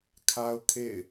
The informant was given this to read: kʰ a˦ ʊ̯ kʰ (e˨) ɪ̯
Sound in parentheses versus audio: incorrect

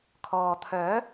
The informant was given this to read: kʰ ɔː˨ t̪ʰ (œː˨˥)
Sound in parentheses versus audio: correct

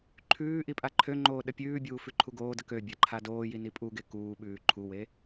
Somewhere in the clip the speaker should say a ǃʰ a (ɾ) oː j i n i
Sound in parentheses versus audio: incorrect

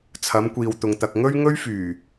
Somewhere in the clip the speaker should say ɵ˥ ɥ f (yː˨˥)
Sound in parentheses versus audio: incorrect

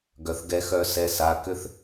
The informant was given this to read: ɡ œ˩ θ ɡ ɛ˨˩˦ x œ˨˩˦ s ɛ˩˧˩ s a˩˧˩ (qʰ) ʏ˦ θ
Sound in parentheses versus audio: incorrect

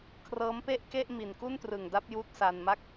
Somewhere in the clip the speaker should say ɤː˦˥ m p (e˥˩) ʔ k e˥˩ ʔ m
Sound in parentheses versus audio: correct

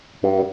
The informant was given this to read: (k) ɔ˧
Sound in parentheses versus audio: incorrect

